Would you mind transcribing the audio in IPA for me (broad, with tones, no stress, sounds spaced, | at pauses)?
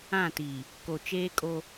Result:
ã˦˨ t i˨ | k o˨ t͡ʃ eː˦ kʼ o˦